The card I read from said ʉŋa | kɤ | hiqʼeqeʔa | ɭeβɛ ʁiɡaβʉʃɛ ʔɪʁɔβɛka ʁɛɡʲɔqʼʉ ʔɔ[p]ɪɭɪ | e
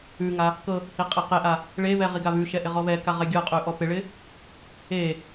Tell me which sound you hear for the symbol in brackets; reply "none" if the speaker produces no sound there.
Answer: p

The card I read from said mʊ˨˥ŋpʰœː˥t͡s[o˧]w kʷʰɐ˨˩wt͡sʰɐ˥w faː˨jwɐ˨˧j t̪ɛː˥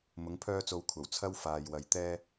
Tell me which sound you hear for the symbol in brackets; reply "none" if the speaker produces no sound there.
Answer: o˧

